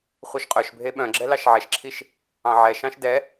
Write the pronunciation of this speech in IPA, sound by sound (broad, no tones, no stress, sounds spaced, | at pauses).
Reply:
χʷ œ ʃ qʼ œ ʃ bʱ e ɓ œ̃ ɡ͡ǁ ɛ l ɑ ʃ ʕ ɛ ʃ ǁʰ i ʃ | ɑ̃ ʕ ɛ ʃ ɑ̃ ʃ d ɛ